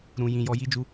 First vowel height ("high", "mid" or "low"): high